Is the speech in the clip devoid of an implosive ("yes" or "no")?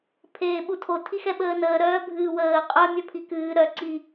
no